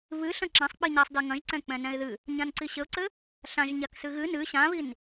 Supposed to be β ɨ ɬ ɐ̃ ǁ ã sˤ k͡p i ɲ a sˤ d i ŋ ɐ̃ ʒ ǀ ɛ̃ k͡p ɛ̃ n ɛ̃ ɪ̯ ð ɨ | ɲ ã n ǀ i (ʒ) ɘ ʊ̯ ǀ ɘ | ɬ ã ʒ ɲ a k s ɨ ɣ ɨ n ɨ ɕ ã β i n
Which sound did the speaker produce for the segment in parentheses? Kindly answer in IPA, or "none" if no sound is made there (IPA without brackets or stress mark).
ɕ